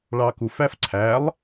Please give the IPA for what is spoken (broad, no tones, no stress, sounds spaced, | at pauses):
ɭ ɑ k u f æ f ǀʰ æ lˠ